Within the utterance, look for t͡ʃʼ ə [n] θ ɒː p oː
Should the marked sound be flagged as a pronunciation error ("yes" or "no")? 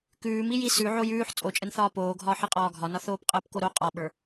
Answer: no